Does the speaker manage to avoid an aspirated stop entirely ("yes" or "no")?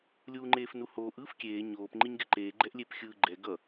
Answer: yes